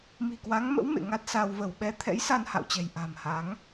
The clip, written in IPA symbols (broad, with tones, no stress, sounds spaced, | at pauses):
m i̤˨˩ k w a˨˦ ŋ m ə̰˧˥ w m ḛ˧˨ ŋ a˦˥ t̚ s a˧ w v ə˧˩ w ɓ ɛ˧ t̪ʰ ɛ̰˧˥ j s a˧ n h a̰˧˨ w t͡ɕ ɛ̤˨˩ j ʔ a̤˨˩ m h a˨˦ ŋ